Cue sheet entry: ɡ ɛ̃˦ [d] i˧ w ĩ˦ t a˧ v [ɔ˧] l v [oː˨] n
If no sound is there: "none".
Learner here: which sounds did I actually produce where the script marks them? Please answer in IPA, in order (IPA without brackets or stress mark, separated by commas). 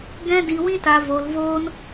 d, o˧, oː˦